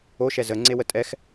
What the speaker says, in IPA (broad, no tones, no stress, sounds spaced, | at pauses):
o ʃ ɛ z ə ŋ͡ǀ e w ə tʼ ɛ x